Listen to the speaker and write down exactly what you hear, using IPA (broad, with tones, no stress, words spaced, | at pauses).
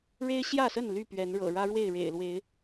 ɻe˦ɪ̯ɕjä˥˨sə˥˨n ly˥˨pɥɛ˨˦nɻɤ̰˨˩ ɻä˦ɻwe˥˨ɪ̯ɻḛ˨˩ɪ̯lwe˨˦ɪ̯